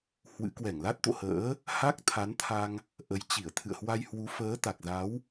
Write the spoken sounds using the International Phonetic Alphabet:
h w ɨ̰˧˥ k w ɛ˧˩ ŋ l a˦˥ t̚ t̪ o̰˧˨ h ə̰ː˧˥ | h a˦˥ k̚ t̪ʰ a˨˦ n t̪ʰ a˧ ŋ | ʔ ə˨˦ j t͡ɕ i˧˩ ə̯ t̪ʰ ɨ̰˧˨ ə̯ h w a˧ j h w u˨˦ f əː˨˦ t̪ a˨˩ k̚ z a˨˦ w

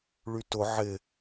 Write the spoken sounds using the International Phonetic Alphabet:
ɭ y t ʊ ʕ ɪ

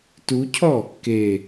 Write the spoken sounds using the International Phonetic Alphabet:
t u cʰ ɔ | k e

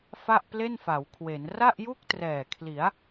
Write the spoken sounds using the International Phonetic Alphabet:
f a˥˩ ʔ p l e˥˩ n f a˩˦ w kʰ w e˩˦ n r a˥˩ ʔ j u˥˩ k̚ t r ɛː˨˩ kʰ l i˩˦ a̯

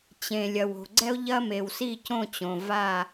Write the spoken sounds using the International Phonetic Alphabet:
t͡ɕ ẽ˩ lʲ ɐ˩ w o̤˩ ɡ͡ǀ ɛ˦ o̯ ʎ ɐ˦ m e˩ w s i˥˨ c õ˥˨ t͡ɕ õ˩ v a˥˨

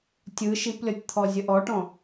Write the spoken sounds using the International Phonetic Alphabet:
tʲ ɯ ʃ i p lʲ ɔ tʲ t̪ʰ ɔ zʲ ə ʔ ɔ ʈ ɔ̃

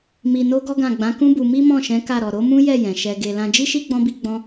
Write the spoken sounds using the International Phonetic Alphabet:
m i˧ n o˦ ɡ ɔ˦ ɡ ã˦˨ ɡ͡b ã˨˦ k ũ˦ b u˧ m i˦ m ɔ̃˦˨ ʃ ɛ̃˨˦ k a˦˨ ɾ ɔ˨ ɾ o˨˦ m ũ˦ j ɛ˦˨ j ɛ̃˨ ʃ ɛ˨ ɡ e˨ l ã˧ d͡ʒ i˦ ʃ i˦ ɡ͡b ɔ̃˦ b i˦ ɡ͡b ɔ̃˦

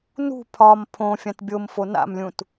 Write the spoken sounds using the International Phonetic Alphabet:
n ṳ pʰ ɒ m pʰ õ fʲ ã t bʲ o m f o n a̰ m lʲ ũ t

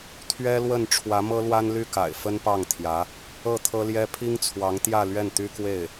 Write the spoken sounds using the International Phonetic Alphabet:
t̪ʰ ɥ ɛ˥ l w ə˥˩ n ʈ͡ʂʰ w ä˧˥ m ɤ˥ l w a˥ n l y˥˩ k a̰˨˩ ɪ̯ f ə˥ n p ɑ˥˩ ŋ t̪ʰ j ä˧˥ | ɤ˥˩ t̪ʰ ɤ˥ l j ɛ˥ pʰ i˥ ŋ t͡sʰ w ɑ˧˥ ŋ t̪ j ä˥˧ l ɥ ɛ˥˩ n t̪ y˥ k w e˥˩ ɪ̯

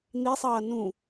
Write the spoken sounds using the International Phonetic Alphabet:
n̪ i sˤ ʌː n ũ

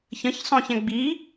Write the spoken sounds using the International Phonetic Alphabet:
ç ə̃ ç sˤ õ ç ɛ̃ ɡ͡b i

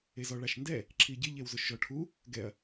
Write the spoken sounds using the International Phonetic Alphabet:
e z ɔ ɭ a ʃ n d ɛ | ǁʰ i ɟ ɪ ʎ e w z ʊ ʃ ʒ ɔ ʈʰ u | ɡ ɛ ɐ̯

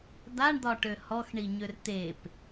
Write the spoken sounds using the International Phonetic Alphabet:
d̪ a ɳ d̪ ɒ ʈ ø h ɔ x ɳ i ɲ ø r t̪ e p

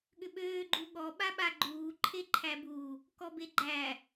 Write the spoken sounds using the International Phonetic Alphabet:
ɠ ʏ ɓ øː ɡ͡ǃ u ɠ ɔ ɓ a ɓ a ɡ͡ǃ uː ǃʰ e ǃʰ æ b u | k ɔ b e ɡ͡ǃ æ

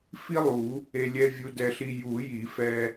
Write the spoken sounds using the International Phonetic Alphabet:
f i˥ lˠ u˨˩˦ | e˧ lʲ ɛ˧˥˧ vʲ u˧ d ɛ˧ ɬ i˧ j u˨˩˦ j i˨˩˦ f ɛ˧

